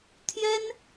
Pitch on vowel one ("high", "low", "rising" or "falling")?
high